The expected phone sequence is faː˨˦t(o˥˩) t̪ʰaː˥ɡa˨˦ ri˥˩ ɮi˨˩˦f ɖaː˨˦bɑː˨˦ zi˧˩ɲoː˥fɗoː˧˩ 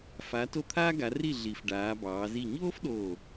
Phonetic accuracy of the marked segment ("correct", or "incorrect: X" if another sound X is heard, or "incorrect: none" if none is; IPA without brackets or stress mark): correct